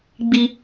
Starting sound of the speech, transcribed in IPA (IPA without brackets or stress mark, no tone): ɡ͡b